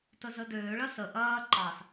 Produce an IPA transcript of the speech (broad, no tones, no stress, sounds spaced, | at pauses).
t ə z ə d øː ɭ ɐ s ə ʔ ɐː ǃ ɑ s